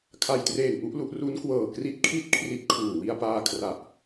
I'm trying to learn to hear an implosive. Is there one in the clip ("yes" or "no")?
no